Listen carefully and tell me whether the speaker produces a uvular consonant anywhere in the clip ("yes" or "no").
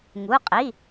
yes